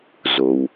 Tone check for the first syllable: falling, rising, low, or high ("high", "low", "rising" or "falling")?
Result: low